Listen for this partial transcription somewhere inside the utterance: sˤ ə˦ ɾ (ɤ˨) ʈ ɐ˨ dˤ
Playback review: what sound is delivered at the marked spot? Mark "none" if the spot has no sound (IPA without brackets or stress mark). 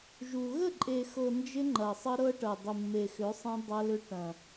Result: ɤ˦